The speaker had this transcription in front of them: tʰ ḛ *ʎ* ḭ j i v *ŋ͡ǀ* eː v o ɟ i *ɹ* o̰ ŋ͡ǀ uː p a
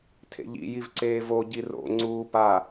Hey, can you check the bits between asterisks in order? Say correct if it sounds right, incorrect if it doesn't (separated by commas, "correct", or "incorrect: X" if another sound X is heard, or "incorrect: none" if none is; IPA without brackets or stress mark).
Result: correct, incorrect: ǀ, incorrect: r